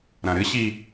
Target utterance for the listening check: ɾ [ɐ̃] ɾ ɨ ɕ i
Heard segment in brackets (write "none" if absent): ɐ̃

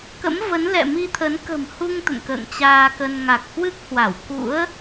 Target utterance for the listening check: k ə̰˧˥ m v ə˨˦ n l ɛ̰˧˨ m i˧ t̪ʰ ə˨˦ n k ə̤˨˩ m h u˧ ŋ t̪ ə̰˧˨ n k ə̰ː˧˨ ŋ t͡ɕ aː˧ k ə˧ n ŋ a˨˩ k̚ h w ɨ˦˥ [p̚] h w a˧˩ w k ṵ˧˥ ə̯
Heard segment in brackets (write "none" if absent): k̚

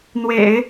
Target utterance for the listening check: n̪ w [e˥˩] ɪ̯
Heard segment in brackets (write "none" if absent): ḛ˨˩˦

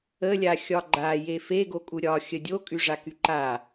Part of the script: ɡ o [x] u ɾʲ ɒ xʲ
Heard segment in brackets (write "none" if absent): kʼ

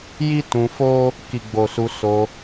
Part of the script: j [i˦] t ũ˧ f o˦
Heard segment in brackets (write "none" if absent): i˦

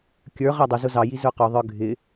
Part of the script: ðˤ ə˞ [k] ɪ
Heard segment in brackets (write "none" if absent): ɡʱ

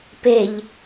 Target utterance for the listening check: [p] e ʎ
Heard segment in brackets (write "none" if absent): p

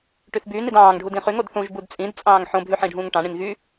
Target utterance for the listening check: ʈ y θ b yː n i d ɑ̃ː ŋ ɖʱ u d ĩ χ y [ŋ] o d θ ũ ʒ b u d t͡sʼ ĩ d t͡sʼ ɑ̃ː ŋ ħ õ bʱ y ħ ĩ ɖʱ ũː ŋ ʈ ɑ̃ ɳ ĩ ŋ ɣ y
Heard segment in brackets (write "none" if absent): ŋ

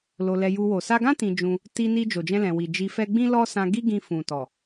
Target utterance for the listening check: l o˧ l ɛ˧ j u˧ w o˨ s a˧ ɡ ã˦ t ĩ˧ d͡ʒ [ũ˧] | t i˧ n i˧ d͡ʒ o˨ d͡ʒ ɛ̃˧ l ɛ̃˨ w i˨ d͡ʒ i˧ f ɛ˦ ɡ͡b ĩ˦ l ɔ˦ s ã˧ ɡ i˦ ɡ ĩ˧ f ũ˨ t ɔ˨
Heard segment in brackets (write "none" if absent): ũ˧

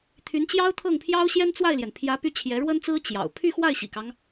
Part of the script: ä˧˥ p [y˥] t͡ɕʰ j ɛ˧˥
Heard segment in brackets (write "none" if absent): y˥˩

